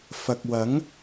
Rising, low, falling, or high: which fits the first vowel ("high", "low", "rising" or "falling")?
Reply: low